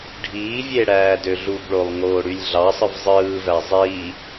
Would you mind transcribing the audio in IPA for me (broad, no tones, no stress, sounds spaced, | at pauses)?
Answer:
ɖʱ iː vʲ e ɽ æː d ø ɮ u b ɭ o lˠ ŋ oː ɽ y lʲ ɮ ɑ sˤ ɯ v zˤ ɯː v æ zˤ iː